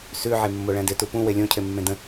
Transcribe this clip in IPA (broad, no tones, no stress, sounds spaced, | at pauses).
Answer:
s ʉ ʕ e mː o ɭ æ̃ d ɪ t u p ũ w e lʲ õ cʰ e mː ẽ d ə̃